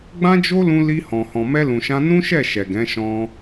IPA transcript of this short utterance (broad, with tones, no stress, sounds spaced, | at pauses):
ɡ͡b ã˦ d͡ʒ o˦ l ũ˧ l i˧ h ɔ̃˨ h ɔ̃˨ m ɛ˧ l ũ˨ ʃ ã˧ n ũ˦ ʃ ɛ˦˨ ʃ ɛ˨ ɡ ɛ̃˨˦ ʃ ɔ̃˧